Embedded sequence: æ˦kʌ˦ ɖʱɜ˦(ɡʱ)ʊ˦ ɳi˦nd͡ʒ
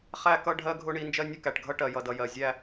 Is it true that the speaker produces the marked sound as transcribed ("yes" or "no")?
yes